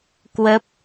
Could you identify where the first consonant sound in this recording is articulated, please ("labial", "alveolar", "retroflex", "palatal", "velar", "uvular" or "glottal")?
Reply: velar